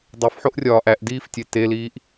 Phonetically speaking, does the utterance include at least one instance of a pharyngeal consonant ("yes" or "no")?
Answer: yes